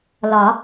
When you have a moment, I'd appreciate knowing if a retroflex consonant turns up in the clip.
no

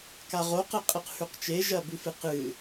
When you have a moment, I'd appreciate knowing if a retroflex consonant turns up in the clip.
no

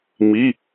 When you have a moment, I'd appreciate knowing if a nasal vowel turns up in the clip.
no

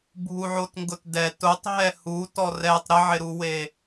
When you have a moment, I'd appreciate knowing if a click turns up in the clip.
no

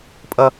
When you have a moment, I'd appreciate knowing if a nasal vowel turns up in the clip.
no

